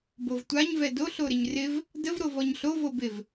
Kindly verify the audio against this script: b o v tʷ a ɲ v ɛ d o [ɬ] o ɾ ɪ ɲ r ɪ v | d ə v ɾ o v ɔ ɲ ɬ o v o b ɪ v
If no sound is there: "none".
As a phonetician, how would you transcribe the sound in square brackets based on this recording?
ɬ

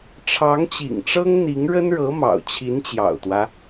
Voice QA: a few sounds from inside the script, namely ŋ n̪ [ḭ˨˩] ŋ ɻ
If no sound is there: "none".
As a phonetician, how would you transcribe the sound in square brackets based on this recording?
i˧˥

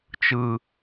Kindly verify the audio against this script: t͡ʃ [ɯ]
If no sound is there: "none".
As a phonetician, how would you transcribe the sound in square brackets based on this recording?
ɯ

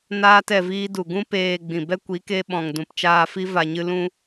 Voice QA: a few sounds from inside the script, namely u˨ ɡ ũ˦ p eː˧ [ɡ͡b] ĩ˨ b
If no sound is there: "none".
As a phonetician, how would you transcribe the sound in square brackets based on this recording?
ɡ͡b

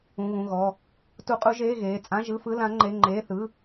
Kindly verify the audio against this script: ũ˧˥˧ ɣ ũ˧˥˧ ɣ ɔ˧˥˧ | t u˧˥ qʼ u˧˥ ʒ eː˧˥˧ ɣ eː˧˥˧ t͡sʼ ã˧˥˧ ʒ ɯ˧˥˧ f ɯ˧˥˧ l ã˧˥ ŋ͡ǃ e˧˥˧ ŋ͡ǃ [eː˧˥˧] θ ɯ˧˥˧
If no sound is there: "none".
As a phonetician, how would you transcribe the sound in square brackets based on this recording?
eː˧˥˧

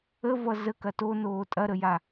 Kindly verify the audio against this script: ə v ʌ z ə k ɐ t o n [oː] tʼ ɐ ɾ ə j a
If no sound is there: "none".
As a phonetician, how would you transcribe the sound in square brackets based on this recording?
oː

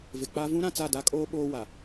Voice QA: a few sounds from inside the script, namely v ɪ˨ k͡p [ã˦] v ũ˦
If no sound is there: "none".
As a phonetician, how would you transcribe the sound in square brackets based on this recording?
a˦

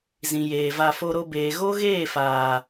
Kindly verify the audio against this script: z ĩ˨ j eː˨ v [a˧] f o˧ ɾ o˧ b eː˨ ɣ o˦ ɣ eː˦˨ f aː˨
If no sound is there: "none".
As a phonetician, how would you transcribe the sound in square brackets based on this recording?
a˧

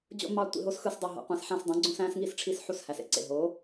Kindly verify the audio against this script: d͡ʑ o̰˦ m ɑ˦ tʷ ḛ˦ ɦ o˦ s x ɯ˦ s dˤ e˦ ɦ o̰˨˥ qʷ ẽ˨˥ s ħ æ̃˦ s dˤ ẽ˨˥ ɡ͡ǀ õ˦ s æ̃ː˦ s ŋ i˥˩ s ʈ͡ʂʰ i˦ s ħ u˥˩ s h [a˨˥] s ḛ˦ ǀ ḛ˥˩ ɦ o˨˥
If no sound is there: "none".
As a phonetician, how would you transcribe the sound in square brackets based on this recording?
æ˨˥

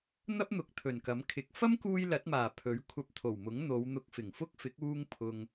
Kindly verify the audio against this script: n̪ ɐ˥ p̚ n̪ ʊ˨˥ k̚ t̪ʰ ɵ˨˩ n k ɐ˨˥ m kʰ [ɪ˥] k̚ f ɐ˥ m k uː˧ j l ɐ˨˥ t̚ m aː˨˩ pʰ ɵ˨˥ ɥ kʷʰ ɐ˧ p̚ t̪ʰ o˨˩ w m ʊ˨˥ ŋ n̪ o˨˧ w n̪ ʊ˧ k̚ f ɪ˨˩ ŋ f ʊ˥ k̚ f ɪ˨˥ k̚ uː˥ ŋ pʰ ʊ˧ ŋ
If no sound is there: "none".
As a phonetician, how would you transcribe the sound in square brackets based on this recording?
ɪ˨˥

